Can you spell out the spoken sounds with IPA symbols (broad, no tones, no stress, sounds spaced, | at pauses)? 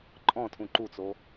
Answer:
ǃʼ ɔ̃ tʰ ũ ǃ u t͡s o